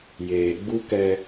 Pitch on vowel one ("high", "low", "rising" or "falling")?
low